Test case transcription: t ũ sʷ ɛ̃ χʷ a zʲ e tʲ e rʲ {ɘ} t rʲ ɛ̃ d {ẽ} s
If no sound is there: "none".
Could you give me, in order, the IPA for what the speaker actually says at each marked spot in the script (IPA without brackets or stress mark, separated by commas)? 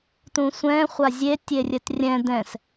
ɘ, ɛ̃